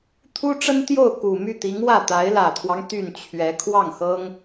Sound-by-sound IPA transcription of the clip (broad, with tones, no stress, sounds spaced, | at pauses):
t̪ʰ u˥ ʈ͡ʂ ə˥ n t̪ j o˥˩ ʊ̯ k u˨˩ m y˥˩ t̪ i˧˥ ŋ w ä˥˩ t̪ a˧˥ ɪ̯ l ä˨˩ t̪ʰ w ɑ˦ ŋ t̪ y˥˩ n t͡ɕʰ ɥ ɛ˧˥ kʰ w ɑ˥˩ ŋ x ɤ˥ ŋ